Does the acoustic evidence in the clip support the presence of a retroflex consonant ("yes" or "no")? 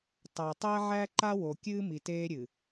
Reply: no